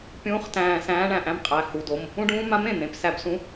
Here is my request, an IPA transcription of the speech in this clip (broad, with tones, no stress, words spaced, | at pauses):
pʲũː˧˥χ tæ̃ː˧˩ sæ̃ː˧˥ɳæ̃˧˩ʔæ̃˧˥mqʼæ˩˧˩ hu˩˧˩do˩˧˩m | ũ˧˥ɖũː˧˥ mã˧˥m ẽ˩˧˩n̪ẽ˩˧˩p sæ˧˩bsũ˧˥